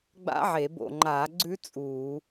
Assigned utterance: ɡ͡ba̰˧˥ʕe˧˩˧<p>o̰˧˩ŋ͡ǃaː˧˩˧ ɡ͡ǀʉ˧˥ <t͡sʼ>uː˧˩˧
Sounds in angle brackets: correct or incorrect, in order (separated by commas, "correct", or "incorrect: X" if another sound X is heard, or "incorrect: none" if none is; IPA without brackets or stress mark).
incorrect: b, correct